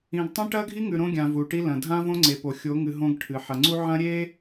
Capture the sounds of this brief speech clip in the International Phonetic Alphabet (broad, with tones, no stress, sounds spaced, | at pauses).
ĩ˨ ɡ tˤ ẽ˦ ʈ ɐ˦ ɡʱ i˦ ŋ ʉ˨ ɾ õ˦ ɡʲ ã˨ v u˨ ʈ i˦ l ɐ̃˨ dʱ ã˦ v õ˦ ŋ͡ǀ e˨ p o˨ xʲ o˨˦ ŋ ɨ˨ ɦ õ˦ ɡ ʈʰ ɨ˨ ħ ɐ˨ ŋ͡ǀ u˦ ʕ ɐ̃˦ ɾʲ e˦